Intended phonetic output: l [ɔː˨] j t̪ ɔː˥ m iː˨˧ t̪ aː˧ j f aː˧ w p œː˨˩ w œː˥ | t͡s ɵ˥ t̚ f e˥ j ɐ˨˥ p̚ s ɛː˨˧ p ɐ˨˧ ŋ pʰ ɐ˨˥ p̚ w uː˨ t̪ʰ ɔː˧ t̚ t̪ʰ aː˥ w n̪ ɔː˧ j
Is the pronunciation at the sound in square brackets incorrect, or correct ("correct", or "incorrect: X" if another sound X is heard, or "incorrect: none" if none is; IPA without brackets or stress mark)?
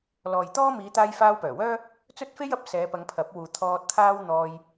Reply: correct